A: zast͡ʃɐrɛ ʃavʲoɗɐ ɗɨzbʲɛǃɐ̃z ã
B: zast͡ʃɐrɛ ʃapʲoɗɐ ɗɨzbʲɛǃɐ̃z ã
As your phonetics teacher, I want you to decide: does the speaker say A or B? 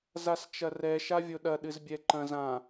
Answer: A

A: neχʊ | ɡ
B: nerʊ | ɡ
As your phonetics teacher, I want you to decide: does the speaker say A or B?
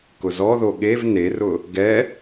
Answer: B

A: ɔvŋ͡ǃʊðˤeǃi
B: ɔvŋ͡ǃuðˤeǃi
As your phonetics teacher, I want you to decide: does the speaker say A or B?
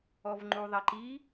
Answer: B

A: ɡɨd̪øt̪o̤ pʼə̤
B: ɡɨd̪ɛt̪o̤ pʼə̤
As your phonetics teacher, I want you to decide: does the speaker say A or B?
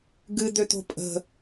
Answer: A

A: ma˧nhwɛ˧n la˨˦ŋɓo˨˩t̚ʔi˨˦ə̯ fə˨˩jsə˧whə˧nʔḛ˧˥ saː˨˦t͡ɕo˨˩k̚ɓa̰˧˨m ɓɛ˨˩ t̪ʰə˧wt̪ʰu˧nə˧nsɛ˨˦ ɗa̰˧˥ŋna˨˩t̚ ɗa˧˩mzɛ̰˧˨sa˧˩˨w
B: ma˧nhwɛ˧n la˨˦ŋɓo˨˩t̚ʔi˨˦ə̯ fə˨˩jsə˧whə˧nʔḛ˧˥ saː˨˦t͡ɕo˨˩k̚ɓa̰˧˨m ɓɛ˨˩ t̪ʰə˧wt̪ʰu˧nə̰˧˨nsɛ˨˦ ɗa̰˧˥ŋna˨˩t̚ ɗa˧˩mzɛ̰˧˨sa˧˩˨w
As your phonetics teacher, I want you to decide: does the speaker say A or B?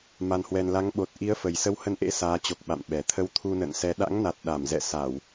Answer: B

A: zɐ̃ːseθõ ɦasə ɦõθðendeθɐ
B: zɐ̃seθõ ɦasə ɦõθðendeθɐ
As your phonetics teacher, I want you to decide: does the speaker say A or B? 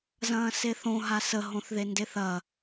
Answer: A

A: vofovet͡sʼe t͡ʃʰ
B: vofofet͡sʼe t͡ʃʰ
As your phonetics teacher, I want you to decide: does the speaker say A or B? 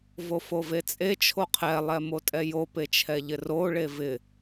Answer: A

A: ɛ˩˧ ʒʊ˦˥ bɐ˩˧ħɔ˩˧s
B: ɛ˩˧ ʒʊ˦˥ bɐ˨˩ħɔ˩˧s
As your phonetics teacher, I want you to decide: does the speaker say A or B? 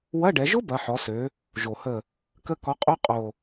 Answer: A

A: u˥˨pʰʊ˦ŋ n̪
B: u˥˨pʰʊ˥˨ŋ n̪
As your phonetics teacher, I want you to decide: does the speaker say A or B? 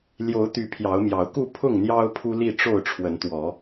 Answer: B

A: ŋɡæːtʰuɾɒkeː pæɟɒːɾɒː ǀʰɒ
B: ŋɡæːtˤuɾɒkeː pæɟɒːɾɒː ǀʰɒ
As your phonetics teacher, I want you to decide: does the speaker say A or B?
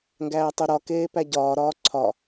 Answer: B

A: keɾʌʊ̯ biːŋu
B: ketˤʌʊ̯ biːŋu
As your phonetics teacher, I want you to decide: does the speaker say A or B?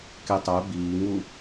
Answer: B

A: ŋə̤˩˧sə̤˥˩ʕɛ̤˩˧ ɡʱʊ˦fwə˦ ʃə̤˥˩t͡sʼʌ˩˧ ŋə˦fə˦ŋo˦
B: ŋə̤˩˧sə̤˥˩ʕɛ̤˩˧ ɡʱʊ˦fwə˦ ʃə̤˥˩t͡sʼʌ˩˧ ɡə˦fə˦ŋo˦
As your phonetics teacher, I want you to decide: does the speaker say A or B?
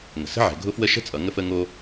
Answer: A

